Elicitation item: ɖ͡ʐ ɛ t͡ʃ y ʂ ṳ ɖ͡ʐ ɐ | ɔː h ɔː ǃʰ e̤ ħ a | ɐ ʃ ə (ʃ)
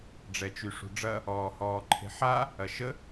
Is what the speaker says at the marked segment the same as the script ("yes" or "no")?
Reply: no